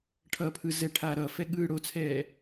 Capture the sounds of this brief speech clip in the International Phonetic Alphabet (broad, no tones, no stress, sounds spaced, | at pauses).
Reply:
ʈʰ ʌ pʰ ɯ z ɛ ʈʰ aː ɾ ʌ f ɛ ɠ ɯː ɽ o t͡sʰ ɛː